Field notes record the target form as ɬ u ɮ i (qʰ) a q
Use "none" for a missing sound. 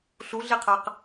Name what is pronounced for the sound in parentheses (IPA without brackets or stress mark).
qʰ